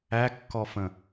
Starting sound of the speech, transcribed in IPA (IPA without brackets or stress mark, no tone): æ